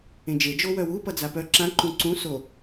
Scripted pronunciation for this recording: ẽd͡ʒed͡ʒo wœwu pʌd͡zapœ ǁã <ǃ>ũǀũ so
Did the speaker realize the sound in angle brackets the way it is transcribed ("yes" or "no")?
yes